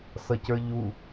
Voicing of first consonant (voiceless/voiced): voiceless